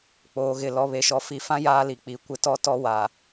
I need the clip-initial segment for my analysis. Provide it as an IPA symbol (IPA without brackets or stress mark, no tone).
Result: k͡p